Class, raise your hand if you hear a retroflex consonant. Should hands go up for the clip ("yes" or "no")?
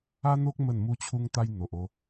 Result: no